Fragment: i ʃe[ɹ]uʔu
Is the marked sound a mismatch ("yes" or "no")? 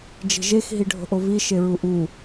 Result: no